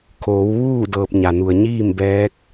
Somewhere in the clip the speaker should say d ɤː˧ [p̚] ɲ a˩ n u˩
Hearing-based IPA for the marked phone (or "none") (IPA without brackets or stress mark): p̚